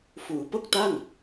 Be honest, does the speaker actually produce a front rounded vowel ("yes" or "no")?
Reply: no